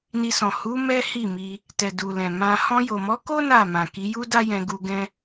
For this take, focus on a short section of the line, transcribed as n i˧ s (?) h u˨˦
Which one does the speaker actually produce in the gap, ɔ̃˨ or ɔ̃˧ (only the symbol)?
ɔ̃˨